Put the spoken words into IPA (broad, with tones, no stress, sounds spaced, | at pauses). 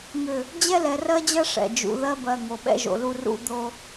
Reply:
ŋ ʏ˦˨ | d͡ʑ ɛ˦ l ɛ˨ r ɜ˦ d͡ʑ ɜ˦ ʂ ɛ̰˨ d͡ʒ ṵ˨ ð ɜ˦ b ɜ˨ ŋ o˨ ɓ ɛ̰˦ ʒ o̰˨ l u˦ r ṵ˦ d̪ o˦